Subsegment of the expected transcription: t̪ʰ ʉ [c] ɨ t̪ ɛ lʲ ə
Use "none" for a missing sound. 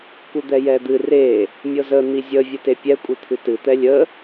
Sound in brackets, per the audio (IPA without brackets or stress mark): t